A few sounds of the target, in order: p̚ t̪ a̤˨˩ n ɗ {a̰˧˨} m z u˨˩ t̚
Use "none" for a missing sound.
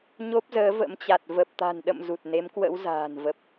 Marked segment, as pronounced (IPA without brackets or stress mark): ə̰˧˨